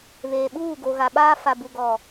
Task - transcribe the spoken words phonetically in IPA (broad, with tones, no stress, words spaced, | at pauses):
βeː˨ɓuː˦˨ ɡo˨ɣa˨ɓaː˦ fa˨bu˨ɡɔ˨